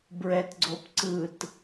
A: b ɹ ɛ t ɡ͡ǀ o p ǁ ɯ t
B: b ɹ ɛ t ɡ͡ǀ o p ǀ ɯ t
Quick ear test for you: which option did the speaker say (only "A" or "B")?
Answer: B